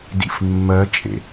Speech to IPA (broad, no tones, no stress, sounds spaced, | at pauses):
d ḭ f mː ɜ t͡ʃʼ ḛ